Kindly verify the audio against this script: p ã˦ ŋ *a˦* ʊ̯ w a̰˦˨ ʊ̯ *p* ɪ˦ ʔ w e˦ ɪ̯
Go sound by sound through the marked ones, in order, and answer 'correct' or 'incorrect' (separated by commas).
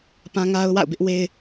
correct, incorrect